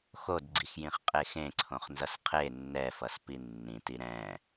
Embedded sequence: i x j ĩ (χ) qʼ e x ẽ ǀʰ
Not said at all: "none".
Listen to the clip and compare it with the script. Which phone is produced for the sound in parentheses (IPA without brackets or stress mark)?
χ